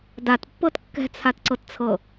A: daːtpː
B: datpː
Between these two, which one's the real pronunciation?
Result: B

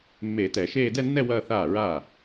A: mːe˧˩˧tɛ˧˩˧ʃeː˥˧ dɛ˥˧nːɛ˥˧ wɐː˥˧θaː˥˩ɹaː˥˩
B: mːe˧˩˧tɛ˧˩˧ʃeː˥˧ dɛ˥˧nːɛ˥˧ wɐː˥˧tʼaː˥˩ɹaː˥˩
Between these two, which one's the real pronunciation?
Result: A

